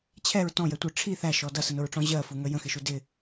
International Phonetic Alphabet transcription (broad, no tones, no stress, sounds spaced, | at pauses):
t͡ɕʰ ɛ ɹ t ɔ̃ j ɛ tʷ ə ʈ͡ʂʰ i θ æ ʃ ɔ d ʌ s ə n ʊ ɹ ʈ͡ʂ ɔ̃ ʑ ɜ f u ŋ ə j ə̃ x ɪ ʃ u d ɪ